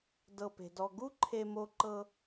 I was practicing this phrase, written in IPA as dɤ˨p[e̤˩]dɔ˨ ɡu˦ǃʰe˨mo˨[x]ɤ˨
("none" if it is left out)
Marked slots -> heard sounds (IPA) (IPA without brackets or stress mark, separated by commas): e̤˩, ǃ